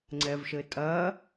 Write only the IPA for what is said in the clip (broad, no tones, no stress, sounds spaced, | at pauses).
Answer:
ŋ͡ǀ ɛ v ʃ ɘ tʼ ɐː